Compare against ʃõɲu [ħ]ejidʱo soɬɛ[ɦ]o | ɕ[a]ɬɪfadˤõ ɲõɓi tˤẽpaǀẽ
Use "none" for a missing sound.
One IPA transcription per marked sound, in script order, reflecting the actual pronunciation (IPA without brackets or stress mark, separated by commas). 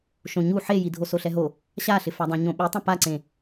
ħ, ɦ, a